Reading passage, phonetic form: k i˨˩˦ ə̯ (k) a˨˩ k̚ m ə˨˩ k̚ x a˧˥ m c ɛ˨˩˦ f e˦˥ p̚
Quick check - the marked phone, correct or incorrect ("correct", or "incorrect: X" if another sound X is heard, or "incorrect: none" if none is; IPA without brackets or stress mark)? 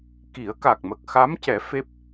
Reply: correct